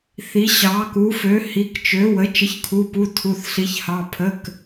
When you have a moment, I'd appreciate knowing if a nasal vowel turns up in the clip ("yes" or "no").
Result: no